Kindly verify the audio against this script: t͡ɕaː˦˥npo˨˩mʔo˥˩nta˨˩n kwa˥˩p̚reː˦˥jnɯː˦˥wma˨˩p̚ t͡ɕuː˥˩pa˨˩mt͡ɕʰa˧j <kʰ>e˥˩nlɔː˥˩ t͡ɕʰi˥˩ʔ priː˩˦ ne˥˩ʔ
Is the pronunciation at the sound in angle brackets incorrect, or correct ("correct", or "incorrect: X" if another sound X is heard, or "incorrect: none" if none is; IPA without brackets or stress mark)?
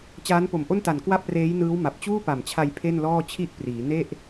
incorrect: pʰ